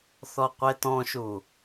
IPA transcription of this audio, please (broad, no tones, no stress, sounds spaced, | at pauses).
θ ɔ qʷ e t ɔ̃ ʃ u